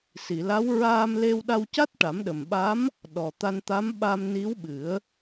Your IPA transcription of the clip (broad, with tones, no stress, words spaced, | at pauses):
si˨˩˨la˧˥w ɹaː˧mle˧wɗa˧wca˦˥t̚ ʈa˨˩˦mɗə˨˩mɓa˧˥m | ɗɔ˨˩t̪a˧nt̪a˧˥m ɓa˧m ni˧˥wɓɨ˨˩˦ə̯